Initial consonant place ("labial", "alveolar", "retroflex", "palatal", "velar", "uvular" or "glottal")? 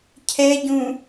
palatal